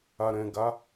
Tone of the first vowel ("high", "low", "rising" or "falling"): low